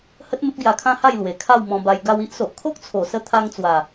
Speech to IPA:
h ə˦ t̚ m ə˦ p̚ ɡ j a˧ kʰ ã˦ h a˥˧ j l w e˨˩ kʰ a˥˧ w m ɔ̃˧ b a˧ j ɡ a˧ w i˦ ʔ s o˨ ʔ kʰ o˦ k̚ t͡sʰ o˨˩ s ə˧ t̪ʰ a˧ ŋ t͡s w a˨˩

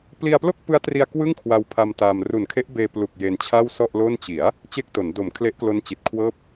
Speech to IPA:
p l i˧ a̯ p l o˥˩ k̚ p ɯ˦˥ a̯ t r i˧ a̯ k w ɯ˥˩ ŋ kʰ w a˧ w pʰ a˧ m t a˧ m r u˨˩ n kʰ e˦˥ ʔ b eː˧ p l u˨˩ k̚ j e˧ n t͡ɕʰ a˥˩ w s ɔ˥˩ ʔ l o˥˩ n t͡ɕ i˩˦ a̯ | t͡ɕ e˥˩ k̚ t o˩˦ n d o˩˦ m kʰ l e˦˥ ʔ k l o˦˥ n t͡ɕ i˨˩ t̚ kʰ w ɤː˥˩ p̚

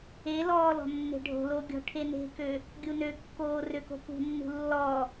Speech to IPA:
e l ɔː l ɔ̤ nː e̤ ɖʱ o̤ l o ɡʲ ɔ̤ ʈʰ e n e̤ k ø | ɡʲ u n ø kː oː r ø k o̤ p ṳ nː ṳ lː ɔ

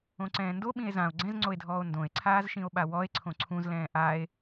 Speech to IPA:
õ ǀ ɛ̃ː n d o ɓ ĩ e̯ z ã o̯ ɡ͡ǀ ɛ̃ z ŋ͡ǀ o e̯ dʱ ɔː o̯ n d õ e̯ ǀʰ aː z ʃ ĩ o̯ ɓ a w ɔ e̯ ǀʰ õ ǀʰ ũ z l ɛ̃ː ʔ a e̯

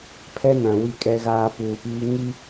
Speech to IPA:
pʰ ɛ˦ n ã˨ w i˦ kʼ ɛ˦ ɣ aː˦ p uː˨ p iː˦ ŋ i˦

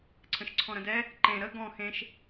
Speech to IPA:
ǀʰ ə̃ ʃ ǀʰ ɔ̃ ɾ ə̃ d ɛ | ǃ ẽ ɾ ə ɡ ɔ̃ x ẽ ʃ

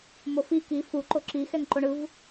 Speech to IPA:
m o f i k i f u ǃ o ǁ i x ɛ ŋ ǃ o ɳ ɯ v

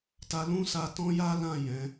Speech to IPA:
t a˧ l ũ˦ s a˧ t ɔ̃˦ j a˦ l ã˦˨ j ɛ̃˨˦

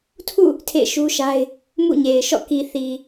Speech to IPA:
tʰ ṵ˦˨ | tʰ ḛ˦˨ ɪ̯ ʃ u˦ ʃ a˦ ɪ̯ | m ṵ˦˨ ɲ e˨ ɪ̯ ʃ ɔ̰˦˨ k i˨ θ i˨

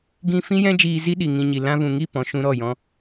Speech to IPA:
ɡ ĩ˦ f ĩ˦ j ɛ̃˦ d͡ʒ iː˧ z i˦ ɗ i˨ ŋ ĩ˧ ɲ i˨ l ã˧ v ũ˨ ŋ i˦˨ p ɔ̃˧ ʃ ũ˦ ɾ ɔ˦˨ j ɔ̃˦

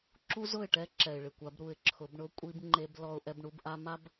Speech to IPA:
ǁ u˦ z ʊ˦˨ ɪ̯ ʈ ɛ˦ ǁ ɛ˨ ɪ̯ ɭ ɪ˨ kʷ a˨˦ b ɾ u˨ ɪ̯ ǁʰ ʊ˨˦ b ɳ ʊ˦ kʷʼ i˦ b ŋ͡ǃ e˦ b l ɔ˦ ʊ̯ ʔ ɛ˦ b ɳ u˦ b ʔ a˦ m a˦ b

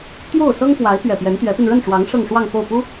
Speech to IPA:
t̪ j o˥˩ ʊ̯ s ɤ˥ ŋ f w a˧˥ ɪ̯ p ɥ ɛ˨˩ p j ɛ˧˥ n t̪ ɥ ɛ˧˥ p i˧ n ɻ ə˥˩ n ʈ͡ʂ w ɑ˧˥ ŋ ʂ ɤ˥˧ ŋ ʂ w ɑ˥˧ ŋ f o˥˩ ʊ̯ p u˥

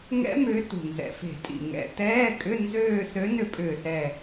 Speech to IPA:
ŋ ɛ̰˦˥ m ʏː˨˦ t ṳ˨˩ n z ɛ̰˨˩ f e̤˧˩˧ tʼ ḭ˨˩ ŋ ɛ̰˨˦ t ɛː˧˥˧ kʼ ʏ˧˥˧ n z øː˦˨ s ø˨˦ n ʏ˨˦ pʼ ʏː˨˩ s ɛ˨˩

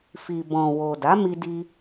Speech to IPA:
f i˨ b ɔ̃˨ w o˨ d a˨˦ m i˧ d i˧

